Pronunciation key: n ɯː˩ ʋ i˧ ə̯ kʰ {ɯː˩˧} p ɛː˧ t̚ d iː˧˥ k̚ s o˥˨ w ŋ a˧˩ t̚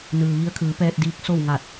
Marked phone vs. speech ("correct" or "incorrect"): correct